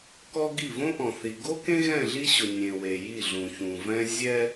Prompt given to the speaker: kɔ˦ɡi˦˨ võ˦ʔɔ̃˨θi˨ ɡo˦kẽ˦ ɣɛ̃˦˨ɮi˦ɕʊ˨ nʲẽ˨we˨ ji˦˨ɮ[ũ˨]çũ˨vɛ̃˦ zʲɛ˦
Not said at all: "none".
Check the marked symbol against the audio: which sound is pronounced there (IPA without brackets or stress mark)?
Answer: ũ˨